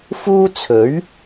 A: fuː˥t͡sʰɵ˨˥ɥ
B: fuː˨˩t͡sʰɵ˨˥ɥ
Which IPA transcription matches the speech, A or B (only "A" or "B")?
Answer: A